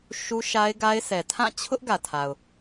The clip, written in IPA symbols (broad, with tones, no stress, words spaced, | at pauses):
ʃu˦ ʃa˦ɪ̯ɡa˦ɪ̯sʰɛ˨ tʰã˦˨t͡ɕʰʊ˦ʔ ɡä˨tʰa˨ʊ̯